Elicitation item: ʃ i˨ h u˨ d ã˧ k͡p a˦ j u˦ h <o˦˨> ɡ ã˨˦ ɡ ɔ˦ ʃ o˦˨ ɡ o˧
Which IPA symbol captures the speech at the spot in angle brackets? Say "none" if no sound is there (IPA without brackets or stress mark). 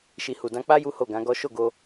o˦˨